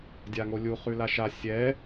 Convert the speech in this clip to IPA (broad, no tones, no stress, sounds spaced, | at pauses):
dʲ a ŋ o lʲ u χ ʉ l a ʃ a sʲ ɛ